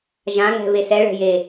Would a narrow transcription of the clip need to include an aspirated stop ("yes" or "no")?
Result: no